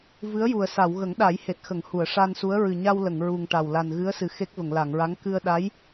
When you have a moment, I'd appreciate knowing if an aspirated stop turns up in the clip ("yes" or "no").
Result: no